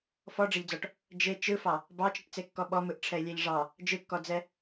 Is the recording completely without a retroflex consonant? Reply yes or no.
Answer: no